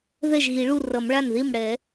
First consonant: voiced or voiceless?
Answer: voiced